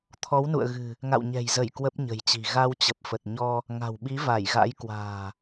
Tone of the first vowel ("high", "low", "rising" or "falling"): rising